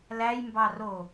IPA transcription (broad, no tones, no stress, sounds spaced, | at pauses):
l æ j m b ɑ r o